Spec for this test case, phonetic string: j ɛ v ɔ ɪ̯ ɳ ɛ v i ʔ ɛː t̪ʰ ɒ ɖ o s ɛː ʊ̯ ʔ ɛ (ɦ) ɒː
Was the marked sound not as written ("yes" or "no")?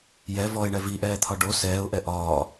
yes